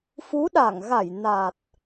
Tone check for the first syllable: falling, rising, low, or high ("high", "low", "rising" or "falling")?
rising